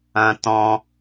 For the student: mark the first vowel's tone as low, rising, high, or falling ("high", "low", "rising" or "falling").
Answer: high